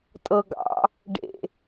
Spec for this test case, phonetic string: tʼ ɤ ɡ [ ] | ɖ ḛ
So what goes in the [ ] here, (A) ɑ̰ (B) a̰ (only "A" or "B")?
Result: A